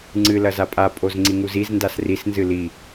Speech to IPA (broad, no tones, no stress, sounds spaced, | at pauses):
ŋ͡ǀ ɨ l ɐ z a pʼ a pʼ o z ŋ͡ǀ i ŋ u z i z n d a s r i s n z ɨ l i